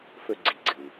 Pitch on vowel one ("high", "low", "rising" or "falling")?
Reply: high